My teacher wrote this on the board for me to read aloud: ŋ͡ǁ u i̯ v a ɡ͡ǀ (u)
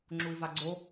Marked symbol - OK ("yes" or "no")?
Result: no